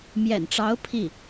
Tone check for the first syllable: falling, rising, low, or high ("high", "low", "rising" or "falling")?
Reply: low